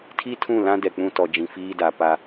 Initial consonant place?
alveolar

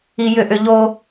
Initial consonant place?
palatal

